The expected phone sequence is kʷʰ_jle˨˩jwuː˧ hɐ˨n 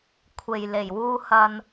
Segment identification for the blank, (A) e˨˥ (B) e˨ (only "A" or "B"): B